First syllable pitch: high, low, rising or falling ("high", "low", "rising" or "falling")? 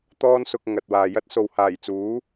high